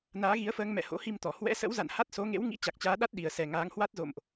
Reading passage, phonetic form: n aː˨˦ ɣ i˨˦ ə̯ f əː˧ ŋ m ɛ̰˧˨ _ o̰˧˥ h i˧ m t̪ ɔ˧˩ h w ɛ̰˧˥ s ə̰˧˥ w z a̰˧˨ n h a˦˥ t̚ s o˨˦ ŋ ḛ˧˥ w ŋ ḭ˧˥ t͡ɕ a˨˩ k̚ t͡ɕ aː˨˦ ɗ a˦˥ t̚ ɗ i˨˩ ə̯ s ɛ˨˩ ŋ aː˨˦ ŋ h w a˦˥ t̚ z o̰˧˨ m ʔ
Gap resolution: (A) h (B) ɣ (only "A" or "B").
A